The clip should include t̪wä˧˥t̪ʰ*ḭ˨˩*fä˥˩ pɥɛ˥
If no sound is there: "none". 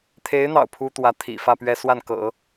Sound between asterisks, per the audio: ḭ˨˩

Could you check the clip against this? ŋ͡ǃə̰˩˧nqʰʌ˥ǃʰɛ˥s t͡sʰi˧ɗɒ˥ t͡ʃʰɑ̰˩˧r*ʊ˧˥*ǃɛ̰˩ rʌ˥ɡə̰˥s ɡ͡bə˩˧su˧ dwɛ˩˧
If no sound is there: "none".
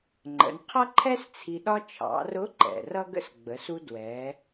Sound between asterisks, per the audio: ʊ˧˥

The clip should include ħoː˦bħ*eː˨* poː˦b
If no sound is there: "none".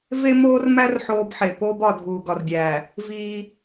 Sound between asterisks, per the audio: e˨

